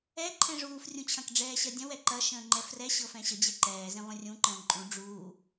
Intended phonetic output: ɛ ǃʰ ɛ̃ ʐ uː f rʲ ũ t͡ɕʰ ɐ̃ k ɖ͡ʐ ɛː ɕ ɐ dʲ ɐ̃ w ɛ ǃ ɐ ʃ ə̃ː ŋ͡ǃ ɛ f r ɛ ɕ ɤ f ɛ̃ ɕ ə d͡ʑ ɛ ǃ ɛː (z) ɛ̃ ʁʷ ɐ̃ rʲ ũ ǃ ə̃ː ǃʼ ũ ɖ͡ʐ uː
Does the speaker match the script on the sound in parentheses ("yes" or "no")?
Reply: yes